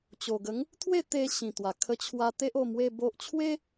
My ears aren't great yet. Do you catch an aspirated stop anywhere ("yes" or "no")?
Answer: yes